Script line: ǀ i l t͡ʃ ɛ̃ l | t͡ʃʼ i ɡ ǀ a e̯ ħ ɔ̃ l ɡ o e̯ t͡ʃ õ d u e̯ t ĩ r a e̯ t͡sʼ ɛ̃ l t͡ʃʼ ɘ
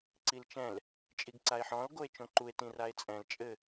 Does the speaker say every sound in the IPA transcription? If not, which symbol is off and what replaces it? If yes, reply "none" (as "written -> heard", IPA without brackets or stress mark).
d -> ǃ